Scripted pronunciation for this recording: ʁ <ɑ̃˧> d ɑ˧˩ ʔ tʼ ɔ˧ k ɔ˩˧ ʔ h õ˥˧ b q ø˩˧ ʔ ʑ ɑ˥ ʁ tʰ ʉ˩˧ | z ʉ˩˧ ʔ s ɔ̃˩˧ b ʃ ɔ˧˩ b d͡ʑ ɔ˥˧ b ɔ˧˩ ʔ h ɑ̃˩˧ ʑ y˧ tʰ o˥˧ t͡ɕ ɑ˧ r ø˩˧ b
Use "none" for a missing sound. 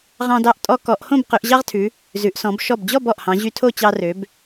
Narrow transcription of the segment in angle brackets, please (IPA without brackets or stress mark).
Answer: ɑ̃˧